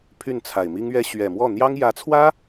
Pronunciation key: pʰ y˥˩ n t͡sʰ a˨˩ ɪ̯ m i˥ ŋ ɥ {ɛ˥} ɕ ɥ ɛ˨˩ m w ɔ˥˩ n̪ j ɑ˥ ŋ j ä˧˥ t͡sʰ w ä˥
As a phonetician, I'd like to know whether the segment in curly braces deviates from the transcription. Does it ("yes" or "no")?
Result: no